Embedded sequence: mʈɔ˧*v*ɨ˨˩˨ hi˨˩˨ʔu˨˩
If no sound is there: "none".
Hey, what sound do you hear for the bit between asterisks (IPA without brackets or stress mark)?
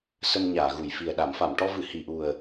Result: v